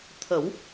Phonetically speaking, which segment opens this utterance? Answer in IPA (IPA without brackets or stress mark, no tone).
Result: t̪ʰ